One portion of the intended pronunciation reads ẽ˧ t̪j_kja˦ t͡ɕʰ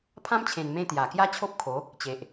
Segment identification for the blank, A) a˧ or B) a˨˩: B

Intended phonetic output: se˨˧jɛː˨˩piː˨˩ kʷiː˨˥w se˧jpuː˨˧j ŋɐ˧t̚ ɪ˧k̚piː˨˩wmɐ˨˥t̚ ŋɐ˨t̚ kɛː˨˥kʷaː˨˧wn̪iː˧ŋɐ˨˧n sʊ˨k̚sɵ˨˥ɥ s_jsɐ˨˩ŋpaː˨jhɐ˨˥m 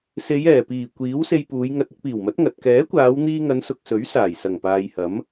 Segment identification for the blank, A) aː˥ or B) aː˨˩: B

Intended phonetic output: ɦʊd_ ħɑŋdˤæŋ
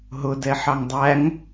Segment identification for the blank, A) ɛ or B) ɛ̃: A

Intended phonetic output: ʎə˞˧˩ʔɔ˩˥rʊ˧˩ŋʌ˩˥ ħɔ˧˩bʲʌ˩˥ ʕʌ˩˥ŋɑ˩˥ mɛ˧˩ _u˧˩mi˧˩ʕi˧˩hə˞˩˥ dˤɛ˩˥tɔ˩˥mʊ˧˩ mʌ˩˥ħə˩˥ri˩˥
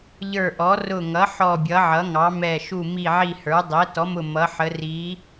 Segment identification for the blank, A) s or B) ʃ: B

